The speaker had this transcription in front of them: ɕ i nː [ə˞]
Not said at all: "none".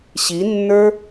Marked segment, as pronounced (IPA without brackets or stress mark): ə˞